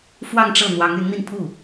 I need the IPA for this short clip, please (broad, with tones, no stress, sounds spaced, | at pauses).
f w ɑ˥˧ ŋ ʈ͡ʂ ɤ˥˩ n̪ w ɑ˧˥ ŋ y˧˥ n n̪ i˧ n pʰ u˥˩